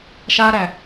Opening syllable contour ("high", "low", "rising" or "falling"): high